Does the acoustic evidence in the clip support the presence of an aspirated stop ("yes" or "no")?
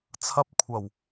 yes